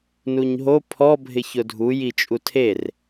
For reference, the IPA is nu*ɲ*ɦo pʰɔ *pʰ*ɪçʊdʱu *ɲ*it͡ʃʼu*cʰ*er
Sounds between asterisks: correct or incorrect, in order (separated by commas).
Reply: correct, incorrect, incorrect, incorrect